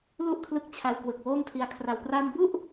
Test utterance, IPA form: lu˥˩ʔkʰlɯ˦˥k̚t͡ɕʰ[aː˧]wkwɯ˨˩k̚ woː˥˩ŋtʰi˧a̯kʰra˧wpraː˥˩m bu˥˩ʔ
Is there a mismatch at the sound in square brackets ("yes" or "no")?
yes